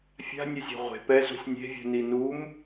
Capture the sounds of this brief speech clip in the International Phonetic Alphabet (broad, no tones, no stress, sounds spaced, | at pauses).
fʲ a̤ nʲ ɵ zʲ ɔ̤ ʁʷ e̤ p ɛ z ṳ sʲ nʲ e̤ vʲ ṳ n i n u m